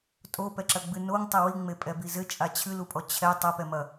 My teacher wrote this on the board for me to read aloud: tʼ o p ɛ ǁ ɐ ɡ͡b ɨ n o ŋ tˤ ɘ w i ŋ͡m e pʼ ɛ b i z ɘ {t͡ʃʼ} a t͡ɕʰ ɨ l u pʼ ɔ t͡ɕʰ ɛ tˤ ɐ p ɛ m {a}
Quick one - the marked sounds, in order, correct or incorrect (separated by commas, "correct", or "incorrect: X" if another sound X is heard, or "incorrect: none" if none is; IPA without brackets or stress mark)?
correct, incorrect: ɐ